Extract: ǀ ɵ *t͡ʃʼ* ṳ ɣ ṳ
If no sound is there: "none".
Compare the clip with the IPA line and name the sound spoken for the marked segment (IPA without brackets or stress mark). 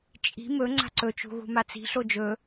t͡ʃ